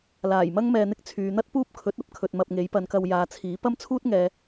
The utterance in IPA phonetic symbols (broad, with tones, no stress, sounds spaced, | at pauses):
l aː˨˩ j m ɐ˥ ŋ m ɛː˧ n̪ ɪ˥ k̚ t͡sʰ yː˨˧ n̪ ɐ˥ t̚ p uː˥ p̚ kʰ ɵ˨˥ t̚ ɐ˨˥ p̚ kʰ ɵ˨ t̚ m ɐ˧ p̚ ŋ e˨˥ j p ɐ˨ n k ɐ˧ w j aː˨ t͡sʰ iː˨˥ p ɐ˥ m t͡sʰ uː˥ t̚ ŋ ɛː˨